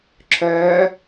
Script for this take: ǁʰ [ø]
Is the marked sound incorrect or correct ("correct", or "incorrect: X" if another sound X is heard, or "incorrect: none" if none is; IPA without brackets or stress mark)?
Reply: incorrect: œ